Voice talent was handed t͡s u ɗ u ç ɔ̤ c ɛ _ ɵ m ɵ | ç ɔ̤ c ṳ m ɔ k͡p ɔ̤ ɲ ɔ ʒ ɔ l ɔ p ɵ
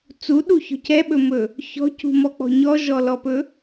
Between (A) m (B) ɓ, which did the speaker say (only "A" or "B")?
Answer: B